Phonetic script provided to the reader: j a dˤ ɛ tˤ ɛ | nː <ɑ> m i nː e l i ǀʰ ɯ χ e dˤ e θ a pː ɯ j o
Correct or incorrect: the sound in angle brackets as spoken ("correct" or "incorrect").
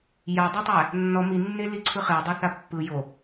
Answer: incorrect